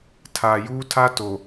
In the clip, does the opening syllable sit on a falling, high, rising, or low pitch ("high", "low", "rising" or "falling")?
low